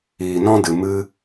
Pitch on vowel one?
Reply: low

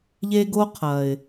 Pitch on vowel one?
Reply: high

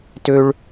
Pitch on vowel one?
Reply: high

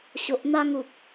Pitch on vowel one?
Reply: low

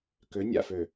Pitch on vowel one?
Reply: rising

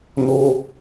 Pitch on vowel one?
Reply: high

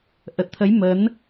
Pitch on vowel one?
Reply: low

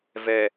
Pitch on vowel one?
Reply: low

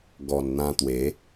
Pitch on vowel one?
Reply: low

